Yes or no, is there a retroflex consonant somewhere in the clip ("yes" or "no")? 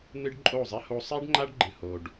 yes